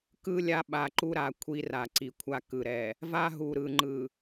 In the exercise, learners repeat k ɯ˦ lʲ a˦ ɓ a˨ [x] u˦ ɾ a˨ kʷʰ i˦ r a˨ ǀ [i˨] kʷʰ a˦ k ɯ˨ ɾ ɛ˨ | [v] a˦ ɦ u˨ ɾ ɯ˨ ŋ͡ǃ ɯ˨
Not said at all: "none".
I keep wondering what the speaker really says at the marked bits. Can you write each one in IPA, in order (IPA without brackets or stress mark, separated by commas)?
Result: ǃ, i˨, v